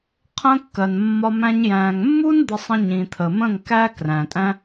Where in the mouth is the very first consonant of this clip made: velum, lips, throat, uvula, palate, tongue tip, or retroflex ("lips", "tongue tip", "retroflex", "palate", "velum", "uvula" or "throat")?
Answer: uvula